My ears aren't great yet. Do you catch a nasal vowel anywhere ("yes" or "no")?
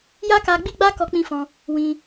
yes